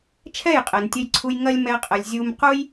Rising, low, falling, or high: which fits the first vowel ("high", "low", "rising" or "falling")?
falling